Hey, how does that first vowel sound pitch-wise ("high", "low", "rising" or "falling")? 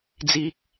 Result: high